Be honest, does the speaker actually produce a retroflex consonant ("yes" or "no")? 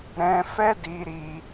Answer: no